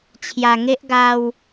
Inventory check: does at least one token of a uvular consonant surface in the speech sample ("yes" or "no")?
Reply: no